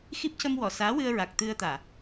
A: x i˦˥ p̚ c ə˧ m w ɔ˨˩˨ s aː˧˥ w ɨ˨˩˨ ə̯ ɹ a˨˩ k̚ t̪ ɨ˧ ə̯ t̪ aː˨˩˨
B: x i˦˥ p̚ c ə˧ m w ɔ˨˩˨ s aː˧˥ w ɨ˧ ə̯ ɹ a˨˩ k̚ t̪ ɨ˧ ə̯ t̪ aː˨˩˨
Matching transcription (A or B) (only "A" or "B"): B